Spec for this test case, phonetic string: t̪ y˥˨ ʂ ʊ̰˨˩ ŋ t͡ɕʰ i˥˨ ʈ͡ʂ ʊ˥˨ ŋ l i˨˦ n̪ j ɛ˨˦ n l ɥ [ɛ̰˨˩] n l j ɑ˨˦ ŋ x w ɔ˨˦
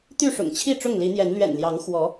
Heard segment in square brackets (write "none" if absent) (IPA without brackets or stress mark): ɛ̰˨˩